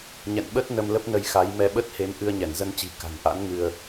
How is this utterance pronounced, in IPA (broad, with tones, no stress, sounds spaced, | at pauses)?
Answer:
ɲ ɛ̰˧˨ n ɓ ə˦˥ t̚ n ə˧ m l ə˦˥ p̚ n ə˧ j x a˨˦ j m ɛ˧ ɓ ə˦˥ t̚ h e˨˦ m ʔ ɨ˧ ə̯ ɲ ɛ˧˩ n z ə˧ n t͡ɕ i̤˨˩ k a̤˨˩ n ʔ a̰˧˥ n ŋ ɨ˧ ə̯